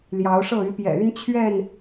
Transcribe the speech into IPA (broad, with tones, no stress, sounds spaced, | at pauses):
l j ɑ˨˦ ʊ̯ ʂ ɤ˥˨ y˨˦ p j ɛ̰˨˩ y˦ n t͡ɕʰ ɥ ɛ˥˨ n